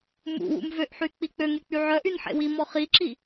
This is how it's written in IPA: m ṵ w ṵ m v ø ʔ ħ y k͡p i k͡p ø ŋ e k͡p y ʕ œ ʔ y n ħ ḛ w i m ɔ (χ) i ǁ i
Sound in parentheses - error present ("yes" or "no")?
no